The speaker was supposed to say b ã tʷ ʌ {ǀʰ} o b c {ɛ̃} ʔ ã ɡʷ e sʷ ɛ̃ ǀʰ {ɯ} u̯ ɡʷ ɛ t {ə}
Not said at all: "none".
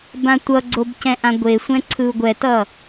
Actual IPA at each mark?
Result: ɡ͡ǀ, ɛ̃, ɯ, ʌ

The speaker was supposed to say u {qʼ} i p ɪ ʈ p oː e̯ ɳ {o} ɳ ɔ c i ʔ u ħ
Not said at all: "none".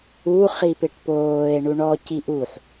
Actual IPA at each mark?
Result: χ, u

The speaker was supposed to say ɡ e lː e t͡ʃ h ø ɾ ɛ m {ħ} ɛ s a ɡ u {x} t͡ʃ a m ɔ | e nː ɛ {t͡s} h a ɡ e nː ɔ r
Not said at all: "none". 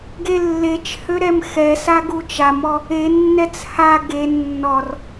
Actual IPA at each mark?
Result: x, none, t͡s

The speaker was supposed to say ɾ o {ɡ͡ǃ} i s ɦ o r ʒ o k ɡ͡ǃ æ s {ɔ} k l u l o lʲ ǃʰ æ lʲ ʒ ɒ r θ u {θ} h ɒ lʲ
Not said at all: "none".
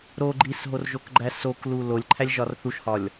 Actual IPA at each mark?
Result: ɡ͡ǃ, o, ʃ

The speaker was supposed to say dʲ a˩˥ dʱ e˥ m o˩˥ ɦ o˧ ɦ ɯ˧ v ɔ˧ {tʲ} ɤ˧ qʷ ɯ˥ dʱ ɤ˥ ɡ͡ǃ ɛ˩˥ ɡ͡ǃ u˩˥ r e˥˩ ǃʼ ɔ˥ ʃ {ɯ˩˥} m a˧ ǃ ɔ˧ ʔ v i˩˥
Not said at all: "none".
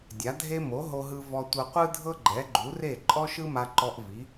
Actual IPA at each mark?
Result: tʷ, ɯ˥

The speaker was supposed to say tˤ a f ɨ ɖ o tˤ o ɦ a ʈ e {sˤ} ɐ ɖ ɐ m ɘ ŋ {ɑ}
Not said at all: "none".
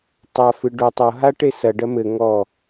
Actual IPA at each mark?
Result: s, ɔ

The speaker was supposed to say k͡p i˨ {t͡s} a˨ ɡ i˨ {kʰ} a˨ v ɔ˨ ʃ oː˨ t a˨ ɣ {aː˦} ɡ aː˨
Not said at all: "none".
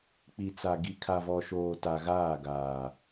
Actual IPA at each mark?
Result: t͡s, kʰ, aː˦˨

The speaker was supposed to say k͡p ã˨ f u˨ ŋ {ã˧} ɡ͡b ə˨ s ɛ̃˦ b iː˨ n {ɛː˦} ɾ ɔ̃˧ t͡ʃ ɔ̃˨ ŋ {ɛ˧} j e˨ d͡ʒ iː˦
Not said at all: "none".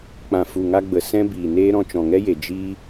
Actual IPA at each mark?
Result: a˧, eː˦, ɛ˦

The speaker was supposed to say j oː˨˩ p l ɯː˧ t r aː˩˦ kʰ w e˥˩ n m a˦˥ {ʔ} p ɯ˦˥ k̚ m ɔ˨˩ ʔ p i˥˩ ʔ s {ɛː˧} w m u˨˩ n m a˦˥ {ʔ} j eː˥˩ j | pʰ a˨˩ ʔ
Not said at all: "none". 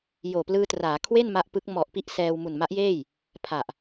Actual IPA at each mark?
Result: ʔ, ɛː˧, ʔ

